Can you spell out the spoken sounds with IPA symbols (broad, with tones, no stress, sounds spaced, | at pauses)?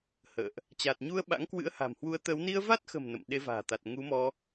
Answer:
h ə̰ː˧˨ ʔ | t͡ɕ a˨˩ t̚ ɲ u˧ ə̯ ɓ a̰˧˥ ŋ k w ɨ̰˧˥ ə̯ h a̤˨˩ m h w u˨˦ ə̯ t̪ əː˨˦ w n i˧ ə̯ v a˦˥ t̚ x ə̤˨˩ m n ə̰˧˨ m ɗ e˨˦ v a̤ː˨˩ t̪ a˨˩ t̚ ŋ u˨˦ m ɔ˧